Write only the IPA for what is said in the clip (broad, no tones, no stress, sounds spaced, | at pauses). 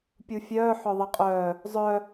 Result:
pʲ u fʲ œː ħ œ ðˤ ɛ qʼ œː | zˤ œ